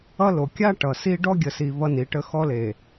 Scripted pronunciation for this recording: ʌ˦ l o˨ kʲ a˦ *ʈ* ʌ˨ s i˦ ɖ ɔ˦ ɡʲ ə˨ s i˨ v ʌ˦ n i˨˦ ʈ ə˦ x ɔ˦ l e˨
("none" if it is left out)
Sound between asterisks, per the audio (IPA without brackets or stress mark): ʈ